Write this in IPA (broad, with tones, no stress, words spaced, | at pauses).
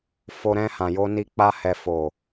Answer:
fo˧ɾɛ̃˧ hã˨jo˧ni˧k͡pa˧ hɛ˨fo˨